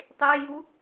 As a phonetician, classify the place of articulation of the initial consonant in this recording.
alveolar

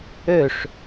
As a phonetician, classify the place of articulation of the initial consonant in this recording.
retroflex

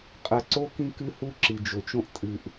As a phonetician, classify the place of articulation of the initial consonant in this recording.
uvular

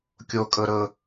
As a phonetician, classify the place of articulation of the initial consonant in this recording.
velar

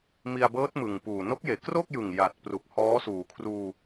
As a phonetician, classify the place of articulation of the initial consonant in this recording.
labial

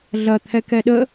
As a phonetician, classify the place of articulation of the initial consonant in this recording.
alveolar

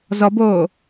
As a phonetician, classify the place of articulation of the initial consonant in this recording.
alveolar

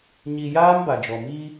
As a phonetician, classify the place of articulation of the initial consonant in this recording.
palatal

